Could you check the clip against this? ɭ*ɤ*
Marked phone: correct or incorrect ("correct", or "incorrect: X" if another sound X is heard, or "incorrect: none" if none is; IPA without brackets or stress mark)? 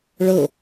correct